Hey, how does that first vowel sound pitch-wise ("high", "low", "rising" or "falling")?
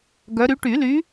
rising